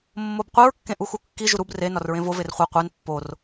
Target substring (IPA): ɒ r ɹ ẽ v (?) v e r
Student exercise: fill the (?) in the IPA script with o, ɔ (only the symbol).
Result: o